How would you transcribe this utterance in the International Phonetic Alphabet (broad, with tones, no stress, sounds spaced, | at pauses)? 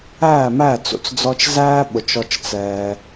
æː˦˨ m æː˦˨ t͡s ṵ˧ t͡s d͡z ɔ˧ t͡ʃ z æː˦ ɓ ʊ˨ t͡ʃ ɔ˧ t͡ʃ t͡s ɛː˧